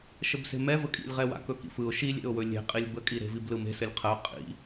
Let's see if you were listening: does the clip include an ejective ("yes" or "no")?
yes